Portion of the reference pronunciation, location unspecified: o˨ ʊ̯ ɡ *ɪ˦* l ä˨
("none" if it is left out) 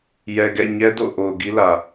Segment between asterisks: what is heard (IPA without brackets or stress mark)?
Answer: i˦